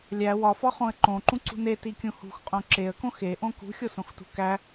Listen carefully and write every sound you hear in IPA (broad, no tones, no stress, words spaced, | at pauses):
lʲæ wɒfɒχõə̯ ǃõǃũǀṳ netikʲũ hṳxqʼõ ǁeə̯kõ xeʔõ kṳxʲosõxtṳ kæ